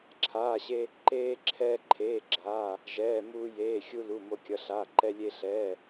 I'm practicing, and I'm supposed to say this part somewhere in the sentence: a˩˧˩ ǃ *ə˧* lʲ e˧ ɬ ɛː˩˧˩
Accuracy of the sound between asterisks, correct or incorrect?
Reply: incorrect